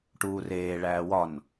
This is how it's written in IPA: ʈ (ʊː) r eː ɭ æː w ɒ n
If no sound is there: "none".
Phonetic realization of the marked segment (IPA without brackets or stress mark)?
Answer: uː